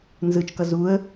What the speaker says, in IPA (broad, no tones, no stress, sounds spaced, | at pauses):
n z ɯ t͡ʃ k ʌ z u ə̯